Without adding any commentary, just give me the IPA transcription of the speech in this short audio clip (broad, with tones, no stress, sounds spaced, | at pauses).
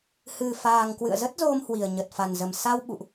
h ɨ˨˩ f aː˨˩ ŋ k w ɨ̰˧˨ ə̯ z ə˦˥ t̚ z o˧ m h w i˨˩ ə̯ ɲ ə˨˩ t̚ f a˨˩ n z ə˨˩ m s a˧ w ɓ ṵ˧˨ ʔ